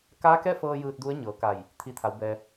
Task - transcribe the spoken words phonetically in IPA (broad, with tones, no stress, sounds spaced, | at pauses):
k aː˧˥ k ɛː˥˨ f ɤː˧ j ɯː˧ t̚ d u˧˥ ə̯ ɲ ɤː˩˧ k a˧˩ j | t̪ʰ i˧ t̪ʰ a˩˧ w b ɛː˩